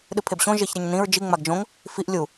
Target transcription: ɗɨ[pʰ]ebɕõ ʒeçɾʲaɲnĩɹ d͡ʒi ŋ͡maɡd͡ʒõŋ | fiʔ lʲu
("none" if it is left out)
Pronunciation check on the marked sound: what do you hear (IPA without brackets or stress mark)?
pʰ